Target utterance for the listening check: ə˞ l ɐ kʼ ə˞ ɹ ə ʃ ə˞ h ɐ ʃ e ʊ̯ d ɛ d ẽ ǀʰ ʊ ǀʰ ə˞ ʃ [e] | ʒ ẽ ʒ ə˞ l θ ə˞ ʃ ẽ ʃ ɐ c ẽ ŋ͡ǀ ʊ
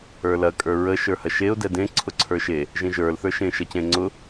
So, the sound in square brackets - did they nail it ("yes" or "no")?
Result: yes